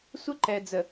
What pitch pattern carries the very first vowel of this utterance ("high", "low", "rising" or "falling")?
high